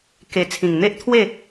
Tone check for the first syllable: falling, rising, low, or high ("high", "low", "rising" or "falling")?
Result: low